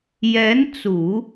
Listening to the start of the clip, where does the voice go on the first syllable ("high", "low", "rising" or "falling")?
rising